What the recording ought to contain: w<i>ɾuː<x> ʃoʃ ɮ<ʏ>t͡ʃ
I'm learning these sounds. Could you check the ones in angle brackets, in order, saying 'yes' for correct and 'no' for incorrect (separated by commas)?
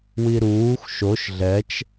yes, yes, no